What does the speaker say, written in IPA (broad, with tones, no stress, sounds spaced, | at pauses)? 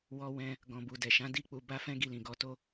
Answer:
w ɔ˧ w ɛ̃˧ | ɡ ɔ̃˨ b u˨ d ɛ˨ ʃ ã˨˦ d i˦˨ k͡p u˧ b a˦ f ɛ̃˦ ɡ i˧ l ĩ˨ ɡ ɔ˧ t o˦